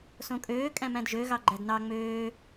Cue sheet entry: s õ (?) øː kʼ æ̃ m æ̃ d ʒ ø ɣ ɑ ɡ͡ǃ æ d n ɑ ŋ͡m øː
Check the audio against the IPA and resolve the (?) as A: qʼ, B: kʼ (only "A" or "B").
B